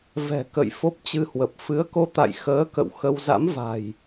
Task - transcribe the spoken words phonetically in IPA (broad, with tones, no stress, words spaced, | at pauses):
vɛ̤˨˩ kə̰˧˨j fo˦˥p̚t͡ɕɨ˧hwə˨˩p̚ fɨ˨˦ə̯ko˧t̪a̰˧˨j xəː˨˦kə̰˧˨w xə˧w za̰˧˥mva̤˨˩j